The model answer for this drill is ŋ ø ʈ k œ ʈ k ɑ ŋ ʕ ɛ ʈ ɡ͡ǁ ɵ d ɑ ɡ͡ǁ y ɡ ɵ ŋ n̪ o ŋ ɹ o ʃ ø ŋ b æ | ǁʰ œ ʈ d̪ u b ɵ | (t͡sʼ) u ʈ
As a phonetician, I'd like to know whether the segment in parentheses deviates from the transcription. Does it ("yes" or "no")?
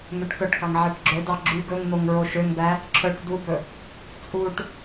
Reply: no